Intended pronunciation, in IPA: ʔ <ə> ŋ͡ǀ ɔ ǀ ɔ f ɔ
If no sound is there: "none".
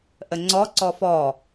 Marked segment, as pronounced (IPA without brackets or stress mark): ə